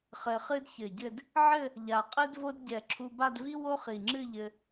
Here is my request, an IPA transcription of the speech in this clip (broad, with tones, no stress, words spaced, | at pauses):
χɘ˧χɨ˥dçɘ˧˩ɟɘ˥˧d | ʕɘ˥˧ | ʎa˧˩qʼi˥dvo˥d ɟɛ˧˩ǁʰu˧ba˥˧dvi˥ wo˥χi˧˩ŋ͡ǁɨ˥˧ʎɘ˧